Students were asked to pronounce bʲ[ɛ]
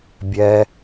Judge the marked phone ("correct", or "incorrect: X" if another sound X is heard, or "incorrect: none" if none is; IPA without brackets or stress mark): correct